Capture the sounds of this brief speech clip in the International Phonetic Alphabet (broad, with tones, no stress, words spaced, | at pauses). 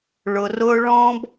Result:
ɭʊ˨rʊː˦ ɭɔ̃˦b